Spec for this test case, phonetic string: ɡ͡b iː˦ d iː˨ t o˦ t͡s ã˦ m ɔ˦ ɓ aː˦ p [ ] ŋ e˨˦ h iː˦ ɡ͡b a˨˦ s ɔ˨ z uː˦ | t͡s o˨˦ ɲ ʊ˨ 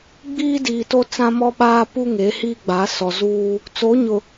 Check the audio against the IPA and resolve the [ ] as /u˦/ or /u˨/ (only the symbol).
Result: u˦